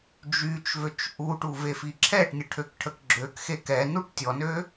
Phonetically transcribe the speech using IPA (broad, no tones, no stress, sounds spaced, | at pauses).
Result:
d͡ʒ y t͡ʃ v ø t͡ʃ ʔ u ʈ u v e f i ǁʰ ɛ ʈ nʲ ə ʈʰ ø k ʈʰ ə k ɡ͡ǁ ø k x e k ɛ n u ʈ tʲ ɔ n ø